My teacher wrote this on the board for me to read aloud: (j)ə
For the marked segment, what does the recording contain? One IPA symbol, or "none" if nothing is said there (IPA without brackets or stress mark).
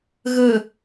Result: ɣ